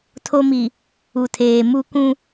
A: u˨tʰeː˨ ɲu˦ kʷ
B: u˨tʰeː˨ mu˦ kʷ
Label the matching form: B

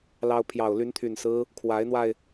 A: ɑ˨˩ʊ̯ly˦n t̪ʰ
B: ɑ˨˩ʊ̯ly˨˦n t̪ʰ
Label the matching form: B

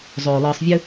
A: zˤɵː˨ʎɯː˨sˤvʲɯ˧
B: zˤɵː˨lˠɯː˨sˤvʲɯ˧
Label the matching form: B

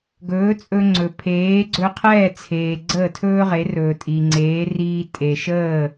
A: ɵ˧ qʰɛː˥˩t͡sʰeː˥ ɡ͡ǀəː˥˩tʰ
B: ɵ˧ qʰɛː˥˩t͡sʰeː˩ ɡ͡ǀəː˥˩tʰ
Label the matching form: B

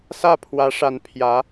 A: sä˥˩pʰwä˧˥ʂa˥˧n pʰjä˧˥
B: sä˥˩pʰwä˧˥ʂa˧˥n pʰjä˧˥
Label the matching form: B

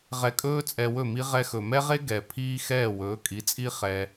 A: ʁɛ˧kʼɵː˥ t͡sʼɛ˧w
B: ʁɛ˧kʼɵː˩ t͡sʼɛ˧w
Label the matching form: A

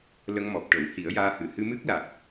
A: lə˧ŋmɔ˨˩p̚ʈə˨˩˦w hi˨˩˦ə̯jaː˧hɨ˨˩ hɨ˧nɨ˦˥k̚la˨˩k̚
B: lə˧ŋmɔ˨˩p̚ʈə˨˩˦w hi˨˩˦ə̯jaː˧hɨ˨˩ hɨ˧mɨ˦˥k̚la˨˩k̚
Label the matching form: B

